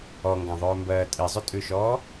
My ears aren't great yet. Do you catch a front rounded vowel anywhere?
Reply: yes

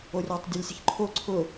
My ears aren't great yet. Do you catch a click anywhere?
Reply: yes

